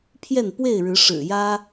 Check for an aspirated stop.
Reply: present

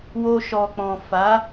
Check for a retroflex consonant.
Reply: absent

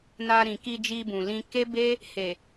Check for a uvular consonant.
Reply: absent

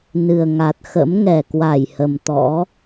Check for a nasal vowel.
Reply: absent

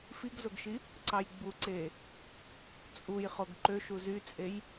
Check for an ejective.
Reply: present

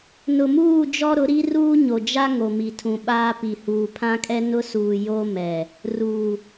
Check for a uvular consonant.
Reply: absent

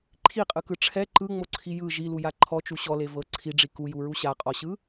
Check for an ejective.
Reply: present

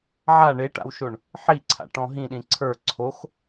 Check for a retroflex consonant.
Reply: present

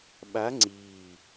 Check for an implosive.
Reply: present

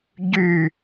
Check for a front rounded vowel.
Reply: present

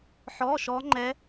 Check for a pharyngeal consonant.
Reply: present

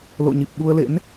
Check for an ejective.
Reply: absent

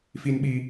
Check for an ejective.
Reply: absent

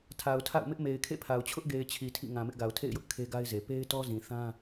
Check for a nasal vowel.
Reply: present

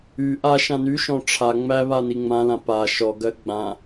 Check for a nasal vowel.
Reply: present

